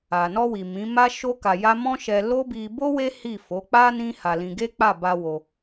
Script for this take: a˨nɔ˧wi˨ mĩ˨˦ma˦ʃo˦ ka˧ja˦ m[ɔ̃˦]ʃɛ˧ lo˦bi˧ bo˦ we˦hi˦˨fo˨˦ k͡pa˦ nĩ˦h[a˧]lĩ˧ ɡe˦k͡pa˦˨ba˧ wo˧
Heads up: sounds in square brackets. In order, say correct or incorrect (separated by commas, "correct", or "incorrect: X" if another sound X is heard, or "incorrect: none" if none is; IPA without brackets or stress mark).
correct, correct